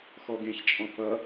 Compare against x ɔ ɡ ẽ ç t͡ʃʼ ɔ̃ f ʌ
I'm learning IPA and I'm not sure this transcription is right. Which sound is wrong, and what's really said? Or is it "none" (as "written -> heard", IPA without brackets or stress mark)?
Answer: none